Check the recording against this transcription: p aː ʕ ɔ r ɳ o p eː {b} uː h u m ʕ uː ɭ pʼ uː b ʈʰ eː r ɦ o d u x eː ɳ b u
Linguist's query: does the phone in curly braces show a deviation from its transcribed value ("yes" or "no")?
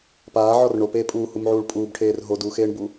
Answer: yes